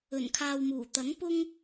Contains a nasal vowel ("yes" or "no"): no